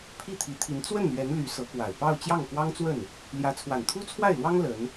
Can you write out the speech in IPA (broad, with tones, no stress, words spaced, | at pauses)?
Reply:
pʰi˥˩t̪ʰi˧˥t̪ʰi˧˥n t͡swə˥˩n lɥɛ˧˥n ly˧˥sɤ˧˥kwa˨˩ɪ̯ pɑ˥˧ʊ̯ t͡ɕjɑ˥˩ŋkwɑ˥ŋt͡swə˥˩n | ljä˧˥t͡sʰwa˨˩nt̪ʰu˥ t͡sʰwa˥˩ɪ̯lwɑ˥ŋ lə˧˥n